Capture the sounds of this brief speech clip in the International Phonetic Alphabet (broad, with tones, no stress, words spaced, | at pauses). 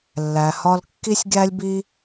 lːæ˨hɒ˦lkːi˥sʲ ɡʲæ˥lʲbi˥